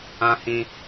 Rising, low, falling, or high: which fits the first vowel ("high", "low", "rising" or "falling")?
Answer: high